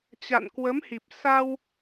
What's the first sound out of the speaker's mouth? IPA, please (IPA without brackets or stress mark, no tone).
t͡ɕ